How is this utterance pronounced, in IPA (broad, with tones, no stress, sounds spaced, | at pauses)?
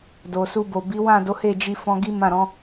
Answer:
d o˨ s u˧ b o˨ b i˨˦ w ã˦˨ d o˨˦ h e˦˨ d͡ʒ i˧ f ɔ̃˧ ɡ i˦ m ã˦˨ ɾ ɔ̃˨˦